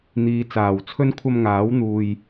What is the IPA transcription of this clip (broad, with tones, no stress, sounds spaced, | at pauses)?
n̪ iː˨ t͡s aː˨˩ w t͡sʰ ɵ˥ n kʷʰ ɐ˧ m ŋ aː˨˥ w n̪ uː˧ j